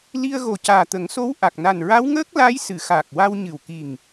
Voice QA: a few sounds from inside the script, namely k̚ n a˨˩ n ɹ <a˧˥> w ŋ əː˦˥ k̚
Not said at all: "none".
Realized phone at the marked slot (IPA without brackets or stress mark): a˧˥